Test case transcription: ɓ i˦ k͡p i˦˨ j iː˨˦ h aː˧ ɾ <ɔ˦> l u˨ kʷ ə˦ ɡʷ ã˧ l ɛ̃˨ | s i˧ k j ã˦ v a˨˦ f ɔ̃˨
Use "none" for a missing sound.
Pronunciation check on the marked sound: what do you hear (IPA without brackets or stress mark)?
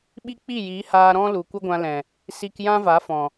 ɔ̃˦